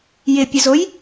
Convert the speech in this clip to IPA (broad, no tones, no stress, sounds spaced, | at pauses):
j ɪ pʲ ʊ z o j